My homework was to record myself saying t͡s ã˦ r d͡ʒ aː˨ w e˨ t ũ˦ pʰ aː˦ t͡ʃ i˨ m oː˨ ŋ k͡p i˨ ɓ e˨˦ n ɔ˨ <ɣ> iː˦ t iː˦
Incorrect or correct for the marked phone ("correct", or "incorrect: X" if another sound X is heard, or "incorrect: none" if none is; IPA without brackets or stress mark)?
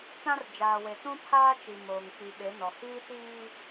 incorrect: h